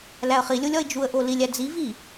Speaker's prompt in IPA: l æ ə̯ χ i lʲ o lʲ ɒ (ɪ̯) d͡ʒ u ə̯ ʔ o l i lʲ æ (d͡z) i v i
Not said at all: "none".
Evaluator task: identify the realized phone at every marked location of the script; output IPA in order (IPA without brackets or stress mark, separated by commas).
ɪ̯, d͡z